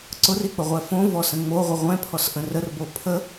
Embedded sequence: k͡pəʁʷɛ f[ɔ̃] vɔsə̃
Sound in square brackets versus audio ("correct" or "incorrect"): incorrect